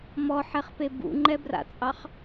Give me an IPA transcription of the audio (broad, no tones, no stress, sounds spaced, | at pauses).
m ɔ ħ ɛ χ p e b ṵ ŋ͡ǃ ɛ b r a̰ t͡sʼ ɑ χ